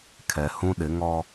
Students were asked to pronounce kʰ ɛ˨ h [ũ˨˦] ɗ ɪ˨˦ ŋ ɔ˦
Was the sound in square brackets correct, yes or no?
no